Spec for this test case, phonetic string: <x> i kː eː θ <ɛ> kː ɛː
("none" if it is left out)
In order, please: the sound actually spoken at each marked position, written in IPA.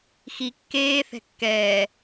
x, ɛ̤

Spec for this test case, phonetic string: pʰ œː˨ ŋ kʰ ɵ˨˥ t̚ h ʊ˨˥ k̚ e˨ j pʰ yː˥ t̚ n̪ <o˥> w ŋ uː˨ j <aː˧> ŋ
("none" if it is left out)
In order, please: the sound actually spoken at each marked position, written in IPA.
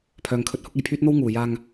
o˥, aː˧

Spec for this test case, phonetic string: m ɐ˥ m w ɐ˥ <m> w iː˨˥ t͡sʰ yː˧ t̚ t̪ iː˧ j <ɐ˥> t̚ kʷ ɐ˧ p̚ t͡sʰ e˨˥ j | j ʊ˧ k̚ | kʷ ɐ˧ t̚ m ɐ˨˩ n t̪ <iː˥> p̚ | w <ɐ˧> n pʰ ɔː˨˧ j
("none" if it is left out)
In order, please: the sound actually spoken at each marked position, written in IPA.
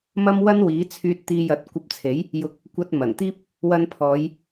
n, ɐ˨˥, iː˥, ɐ˧

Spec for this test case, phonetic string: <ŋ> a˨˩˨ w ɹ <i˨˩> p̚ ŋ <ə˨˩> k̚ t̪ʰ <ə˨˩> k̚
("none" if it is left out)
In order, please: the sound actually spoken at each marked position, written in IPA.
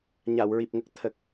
ɲ, i˨˩, ə˦˥, ə˨˩

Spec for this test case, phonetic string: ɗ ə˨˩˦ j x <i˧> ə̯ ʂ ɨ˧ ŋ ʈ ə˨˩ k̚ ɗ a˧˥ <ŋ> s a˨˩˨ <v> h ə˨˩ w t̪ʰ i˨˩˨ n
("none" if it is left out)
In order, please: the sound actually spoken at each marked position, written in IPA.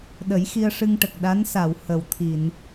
i˧, n, w

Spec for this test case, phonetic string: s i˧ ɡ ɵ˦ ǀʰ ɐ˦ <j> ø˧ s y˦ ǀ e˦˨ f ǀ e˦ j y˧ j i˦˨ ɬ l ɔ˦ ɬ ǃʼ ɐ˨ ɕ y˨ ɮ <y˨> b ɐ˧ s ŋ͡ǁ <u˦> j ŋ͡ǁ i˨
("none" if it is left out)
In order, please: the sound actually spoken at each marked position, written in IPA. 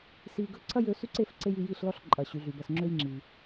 j, y˨, ø˦

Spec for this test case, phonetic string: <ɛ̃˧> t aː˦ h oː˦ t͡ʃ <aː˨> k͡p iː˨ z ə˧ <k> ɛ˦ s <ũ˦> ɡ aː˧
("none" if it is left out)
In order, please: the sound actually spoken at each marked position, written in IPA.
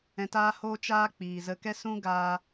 ɛ̃˧, aː˦, k, ũ˦

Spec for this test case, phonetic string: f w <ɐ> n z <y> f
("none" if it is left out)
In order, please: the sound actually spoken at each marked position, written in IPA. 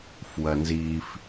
ɐ, i

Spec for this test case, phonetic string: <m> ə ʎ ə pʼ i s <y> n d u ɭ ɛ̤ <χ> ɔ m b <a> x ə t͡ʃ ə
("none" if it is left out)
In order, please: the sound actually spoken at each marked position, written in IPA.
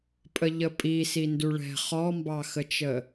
pʼ, i, χ, ɑ

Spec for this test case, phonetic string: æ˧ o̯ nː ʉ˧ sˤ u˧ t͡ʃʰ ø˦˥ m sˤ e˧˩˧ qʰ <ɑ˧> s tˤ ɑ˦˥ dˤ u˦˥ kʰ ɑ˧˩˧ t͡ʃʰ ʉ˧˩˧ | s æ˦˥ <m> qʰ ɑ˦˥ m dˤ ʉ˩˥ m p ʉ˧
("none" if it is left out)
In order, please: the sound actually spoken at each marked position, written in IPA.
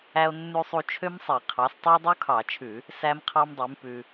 ɑ˩˥, m

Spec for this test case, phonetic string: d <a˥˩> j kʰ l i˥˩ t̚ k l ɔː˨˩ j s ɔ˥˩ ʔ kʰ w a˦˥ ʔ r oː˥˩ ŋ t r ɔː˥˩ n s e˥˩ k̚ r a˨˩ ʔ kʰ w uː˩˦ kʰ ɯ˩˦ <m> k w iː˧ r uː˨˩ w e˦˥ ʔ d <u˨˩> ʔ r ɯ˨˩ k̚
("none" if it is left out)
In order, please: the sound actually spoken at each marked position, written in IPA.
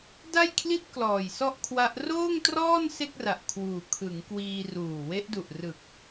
a˥˩, ŋ, u˨˩

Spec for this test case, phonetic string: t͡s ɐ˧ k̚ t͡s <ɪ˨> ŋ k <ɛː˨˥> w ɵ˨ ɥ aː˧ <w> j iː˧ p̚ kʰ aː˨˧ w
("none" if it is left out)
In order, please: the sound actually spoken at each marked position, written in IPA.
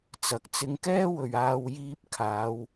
ɪ˧, ɛː˥, w

